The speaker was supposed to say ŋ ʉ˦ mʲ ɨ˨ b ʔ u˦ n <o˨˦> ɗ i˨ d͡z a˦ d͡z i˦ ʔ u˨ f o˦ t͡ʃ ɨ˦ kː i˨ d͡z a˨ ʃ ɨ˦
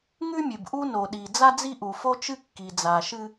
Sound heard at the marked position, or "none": o˨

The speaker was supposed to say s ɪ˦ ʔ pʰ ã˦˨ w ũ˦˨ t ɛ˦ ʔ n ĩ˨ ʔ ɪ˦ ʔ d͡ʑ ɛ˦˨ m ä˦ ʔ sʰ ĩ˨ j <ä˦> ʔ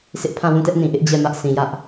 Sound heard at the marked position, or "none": ä˦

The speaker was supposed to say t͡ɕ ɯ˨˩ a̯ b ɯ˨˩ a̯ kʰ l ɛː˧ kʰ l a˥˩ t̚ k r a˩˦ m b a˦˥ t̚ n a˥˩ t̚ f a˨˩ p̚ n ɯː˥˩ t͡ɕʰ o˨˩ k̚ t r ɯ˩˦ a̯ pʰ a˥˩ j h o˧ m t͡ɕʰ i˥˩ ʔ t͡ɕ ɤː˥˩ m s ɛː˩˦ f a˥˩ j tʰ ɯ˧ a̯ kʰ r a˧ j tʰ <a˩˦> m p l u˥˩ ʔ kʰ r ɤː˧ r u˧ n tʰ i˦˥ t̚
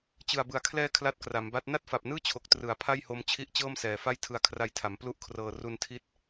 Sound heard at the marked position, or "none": a˩˦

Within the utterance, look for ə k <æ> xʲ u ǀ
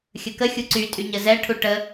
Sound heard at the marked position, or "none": ə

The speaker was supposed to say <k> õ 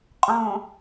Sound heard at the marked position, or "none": qʼ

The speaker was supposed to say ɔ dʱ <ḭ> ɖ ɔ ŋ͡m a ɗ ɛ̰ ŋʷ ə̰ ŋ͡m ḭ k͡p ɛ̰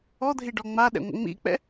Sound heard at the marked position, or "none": i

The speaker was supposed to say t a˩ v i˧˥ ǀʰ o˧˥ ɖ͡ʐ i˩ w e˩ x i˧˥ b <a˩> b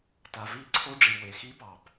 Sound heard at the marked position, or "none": ɑ˩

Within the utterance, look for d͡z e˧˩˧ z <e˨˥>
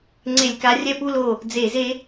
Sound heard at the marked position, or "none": e˦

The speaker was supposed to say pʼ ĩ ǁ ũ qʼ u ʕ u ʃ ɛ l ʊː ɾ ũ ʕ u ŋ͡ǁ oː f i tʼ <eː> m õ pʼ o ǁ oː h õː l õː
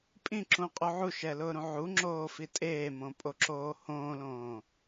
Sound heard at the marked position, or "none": eː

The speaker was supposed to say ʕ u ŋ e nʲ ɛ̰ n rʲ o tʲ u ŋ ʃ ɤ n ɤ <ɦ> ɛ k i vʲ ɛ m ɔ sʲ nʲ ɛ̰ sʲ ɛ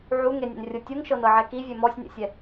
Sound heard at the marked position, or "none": ʕ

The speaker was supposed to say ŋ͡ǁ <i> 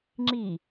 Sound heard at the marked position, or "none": i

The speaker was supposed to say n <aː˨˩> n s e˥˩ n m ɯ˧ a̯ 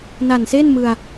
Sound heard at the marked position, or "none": a˨˩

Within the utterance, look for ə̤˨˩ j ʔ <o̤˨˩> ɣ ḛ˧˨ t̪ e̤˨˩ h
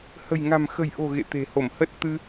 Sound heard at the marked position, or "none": o̤˨˩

